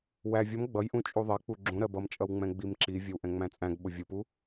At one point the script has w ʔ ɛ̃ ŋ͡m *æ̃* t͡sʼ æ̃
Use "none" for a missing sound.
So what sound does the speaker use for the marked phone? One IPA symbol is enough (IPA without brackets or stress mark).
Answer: æ̃